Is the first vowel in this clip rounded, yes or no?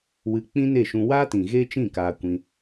no